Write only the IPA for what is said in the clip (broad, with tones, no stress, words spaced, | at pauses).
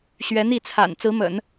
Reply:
ɕɥɛ˧˥n̪i˥˩t͡sʰa̰˨˩n t͡sɹ̩˧˥mə̰˨˩˦n